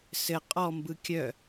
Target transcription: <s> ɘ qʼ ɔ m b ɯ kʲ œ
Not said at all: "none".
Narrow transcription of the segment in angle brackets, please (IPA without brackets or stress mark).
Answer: s